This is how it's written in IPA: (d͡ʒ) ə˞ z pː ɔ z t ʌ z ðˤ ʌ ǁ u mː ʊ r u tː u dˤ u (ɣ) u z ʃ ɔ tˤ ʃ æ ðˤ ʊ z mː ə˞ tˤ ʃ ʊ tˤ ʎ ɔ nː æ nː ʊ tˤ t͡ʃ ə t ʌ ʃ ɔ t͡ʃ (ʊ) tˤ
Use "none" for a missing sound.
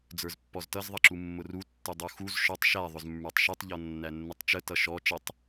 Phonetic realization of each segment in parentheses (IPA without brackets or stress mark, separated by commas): d͡z, x, ə